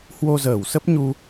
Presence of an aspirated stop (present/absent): absent